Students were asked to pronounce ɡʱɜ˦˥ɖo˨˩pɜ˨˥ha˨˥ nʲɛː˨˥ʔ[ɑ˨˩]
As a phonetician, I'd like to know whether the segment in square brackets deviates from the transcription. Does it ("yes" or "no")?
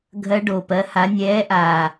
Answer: yes